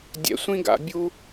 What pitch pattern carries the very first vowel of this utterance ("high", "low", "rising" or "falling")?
rising